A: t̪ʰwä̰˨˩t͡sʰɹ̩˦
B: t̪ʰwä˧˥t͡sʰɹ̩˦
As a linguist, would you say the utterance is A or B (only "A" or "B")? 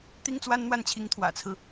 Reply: A